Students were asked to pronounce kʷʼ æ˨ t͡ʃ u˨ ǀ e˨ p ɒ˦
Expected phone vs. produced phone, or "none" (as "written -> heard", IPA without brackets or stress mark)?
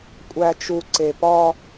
none